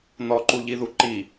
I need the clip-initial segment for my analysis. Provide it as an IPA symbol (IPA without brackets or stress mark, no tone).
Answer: n̪